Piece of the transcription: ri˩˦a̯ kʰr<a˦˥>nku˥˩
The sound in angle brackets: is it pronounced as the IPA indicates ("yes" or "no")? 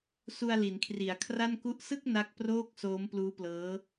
no